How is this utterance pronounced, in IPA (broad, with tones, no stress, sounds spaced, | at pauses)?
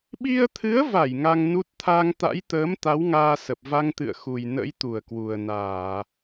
ɓ i˧ ə̯ t̪ʰ ɨ˨˦ ə̯ v a˧˩ j ŋ a˧ ŋ n u˦˥ t̚ t̪ʰ a˧ ŋ t̪ a̰˧˥ j t̪ əː˨˦ m t̪ a˨˦ w ŋ aː˧ s ə˨˩ p̚ v a˧ ŋ t̪ ɨ̰˧˨ ə̯ x u˨˩ j n ə̰˧˥ j t̪ u˧˩ ə̯ k w u˨˩ ə̯ n aː˧˩˨